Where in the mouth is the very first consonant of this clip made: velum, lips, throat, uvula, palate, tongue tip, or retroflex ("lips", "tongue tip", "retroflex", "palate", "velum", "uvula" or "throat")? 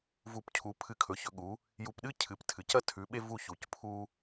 lips